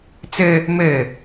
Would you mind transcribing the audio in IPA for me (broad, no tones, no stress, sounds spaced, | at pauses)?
t͡s ɘ | m ɘ